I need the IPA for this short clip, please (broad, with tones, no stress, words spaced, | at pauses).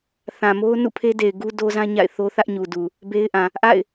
θã˨mo˦ʊ̯ nṵ˦˨pʰe˦de˨ɪ̯ ɡu˦do˦zã˦ ɲa̰˦˨ɪ̯θo˦ θä˦ʔɲu˨du˨ | be˦ɪ̯ʔã˨ | ʔa̰˦˨ɪ̯